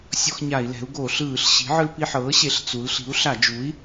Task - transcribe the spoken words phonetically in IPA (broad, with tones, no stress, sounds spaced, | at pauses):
sʲ ɔ˧ x ɲ a˧˩˧ i̯ l ɛ̤˩˥ u̯ ɡ o˧˩˧ ɬ ɯː˧˩˧ ɬ ɕ i̤˩˥ ʕ ɯ˧ l p i˧ ħ ɤː˩˥ ɕ e˩˥ ɬ t͡s u˩˥ l ɬ i̤˩˥ u̯ ɬ a˧˩˧ d͡ʒ u˩˥ i̯